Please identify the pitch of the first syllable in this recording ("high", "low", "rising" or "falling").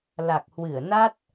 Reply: low